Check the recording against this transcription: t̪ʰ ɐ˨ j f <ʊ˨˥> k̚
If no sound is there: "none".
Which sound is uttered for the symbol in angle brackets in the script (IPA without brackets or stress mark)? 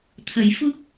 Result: ʊ˥